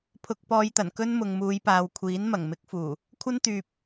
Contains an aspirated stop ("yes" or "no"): yes